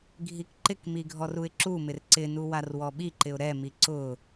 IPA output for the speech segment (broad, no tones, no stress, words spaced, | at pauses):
ɡʱikǃɪkmi ɡʱɔruɪ̯ǁumɪr ǀɪnu warwɔɓiǃɪʊ̯ ɾɛmi ǀʊ